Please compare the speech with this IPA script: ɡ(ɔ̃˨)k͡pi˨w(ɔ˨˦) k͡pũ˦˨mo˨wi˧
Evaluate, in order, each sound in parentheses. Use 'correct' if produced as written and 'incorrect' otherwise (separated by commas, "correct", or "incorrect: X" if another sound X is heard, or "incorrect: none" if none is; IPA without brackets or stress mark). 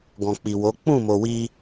correct, incorrect: o˨˦